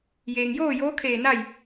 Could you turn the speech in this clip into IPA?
jeː˩ŋjoː˥˨joː˧˥kʰeː˧˩ na˥˨j

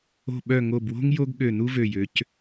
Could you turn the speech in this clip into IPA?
o̤˧˩ɓœ˧˩ŋo˧˩bwo̤˥ŋ jo˥ɡ ɠø˧˩nu˥vø˧˩jø˩˧c

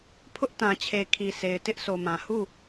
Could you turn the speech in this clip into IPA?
pʰʊ˦ʔtã˨t͡ɕʰe˨ kʰi˨sʰe˨ɪ̯ tɪ˦ʔso˨mã˨ hu˦˨

